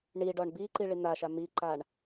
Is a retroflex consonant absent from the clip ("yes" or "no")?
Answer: no